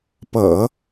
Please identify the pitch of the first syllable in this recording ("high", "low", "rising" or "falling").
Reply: low